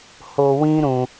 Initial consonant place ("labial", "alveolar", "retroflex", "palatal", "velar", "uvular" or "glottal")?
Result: glottal